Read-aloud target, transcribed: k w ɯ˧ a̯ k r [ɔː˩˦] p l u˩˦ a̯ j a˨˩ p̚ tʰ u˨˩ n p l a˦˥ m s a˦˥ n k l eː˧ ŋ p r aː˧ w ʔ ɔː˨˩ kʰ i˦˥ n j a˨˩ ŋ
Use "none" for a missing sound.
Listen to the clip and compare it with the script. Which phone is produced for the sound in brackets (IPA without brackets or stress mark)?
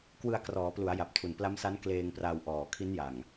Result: ɔː˩˦